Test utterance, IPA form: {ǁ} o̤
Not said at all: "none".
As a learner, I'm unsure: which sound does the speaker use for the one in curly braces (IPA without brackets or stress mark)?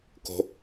k